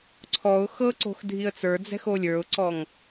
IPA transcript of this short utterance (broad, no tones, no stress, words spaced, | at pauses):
ǀʰɔʊ̯ xɤǀo̤x dʱiə̯t͡sə˞d͡zɛ̤ xolʲə˞ʊ̯ǀɔŋ